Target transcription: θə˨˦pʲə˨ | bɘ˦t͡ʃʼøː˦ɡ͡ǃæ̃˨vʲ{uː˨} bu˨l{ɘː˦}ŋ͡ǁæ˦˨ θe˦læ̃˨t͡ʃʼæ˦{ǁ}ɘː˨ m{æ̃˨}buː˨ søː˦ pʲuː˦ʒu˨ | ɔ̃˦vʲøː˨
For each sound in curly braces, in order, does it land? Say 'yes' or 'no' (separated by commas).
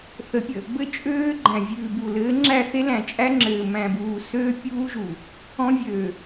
no, no, no, yes